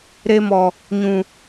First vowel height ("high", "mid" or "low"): mid